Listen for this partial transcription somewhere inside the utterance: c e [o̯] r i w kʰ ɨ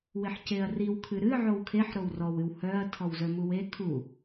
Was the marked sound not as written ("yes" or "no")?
yes